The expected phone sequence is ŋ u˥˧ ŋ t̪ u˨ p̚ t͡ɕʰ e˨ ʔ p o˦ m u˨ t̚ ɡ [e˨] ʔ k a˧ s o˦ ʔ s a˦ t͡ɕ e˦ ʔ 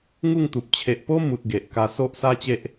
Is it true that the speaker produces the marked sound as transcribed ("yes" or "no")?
yes